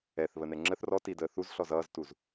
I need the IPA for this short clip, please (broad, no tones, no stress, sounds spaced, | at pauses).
ɛ θ β ə n ɛ ŋ͡ǁ ə θ r ɔ t i d əː θ u z ɬ ɔ z ʌː z t u z